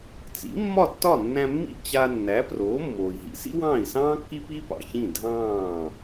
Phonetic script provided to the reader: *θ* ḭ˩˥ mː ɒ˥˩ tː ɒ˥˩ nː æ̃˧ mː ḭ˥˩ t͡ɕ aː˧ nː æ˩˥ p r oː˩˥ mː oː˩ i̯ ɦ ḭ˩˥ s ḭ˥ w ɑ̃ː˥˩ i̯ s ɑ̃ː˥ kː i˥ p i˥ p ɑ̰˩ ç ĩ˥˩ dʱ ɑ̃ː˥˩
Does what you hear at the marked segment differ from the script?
yes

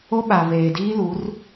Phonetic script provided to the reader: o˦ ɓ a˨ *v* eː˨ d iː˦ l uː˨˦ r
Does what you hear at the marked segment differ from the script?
yes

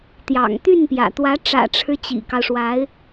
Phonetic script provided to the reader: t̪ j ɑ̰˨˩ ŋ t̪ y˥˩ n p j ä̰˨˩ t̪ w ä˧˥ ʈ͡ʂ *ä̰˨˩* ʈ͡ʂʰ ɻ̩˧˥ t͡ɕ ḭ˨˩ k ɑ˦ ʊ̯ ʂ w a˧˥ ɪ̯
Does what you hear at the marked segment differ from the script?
no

